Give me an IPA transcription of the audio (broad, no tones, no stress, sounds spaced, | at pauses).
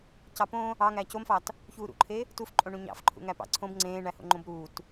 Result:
c ɑ p õ | ɑ ŋ æː c o m f ɑ t | ç uː ɾ ṵ ǃʰ e | t u f ǃʼ õ ɳ ũ ɲ ɑ̰ f ǃʰ ṵ ŋ æ p ɑ̰ ǀʰ õ b ŋ͡ǀ ẽː ɳ æ h o̰ ŋ͡ǃ õ b ɾ uː t